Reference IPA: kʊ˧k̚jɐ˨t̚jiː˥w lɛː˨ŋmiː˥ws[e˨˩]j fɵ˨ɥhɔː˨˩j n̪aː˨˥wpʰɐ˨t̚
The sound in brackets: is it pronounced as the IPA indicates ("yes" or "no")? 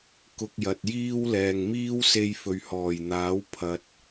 no